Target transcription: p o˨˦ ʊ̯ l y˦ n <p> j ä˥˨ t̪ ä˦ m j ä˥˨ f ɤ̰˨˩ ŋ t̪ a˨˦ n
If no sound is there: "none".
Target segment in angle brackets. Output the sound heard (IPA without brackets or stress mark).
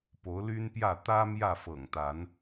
p